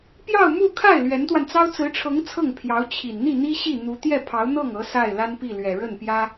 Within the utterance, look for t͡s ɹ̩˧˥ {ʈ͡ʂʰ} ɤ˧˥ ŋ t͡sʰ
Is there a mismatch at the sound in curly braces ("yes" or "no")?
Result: no